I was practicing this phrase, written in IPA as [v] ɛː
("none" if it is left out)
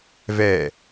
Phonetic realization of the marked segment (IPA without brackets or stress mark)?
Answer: v